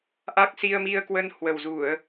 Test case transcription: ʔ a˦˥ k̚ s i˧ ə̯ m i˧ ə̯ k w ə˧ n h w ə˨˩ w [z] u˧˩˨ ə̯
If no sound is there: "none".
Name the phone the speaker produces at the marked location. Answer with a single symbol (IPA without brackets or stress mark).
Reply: z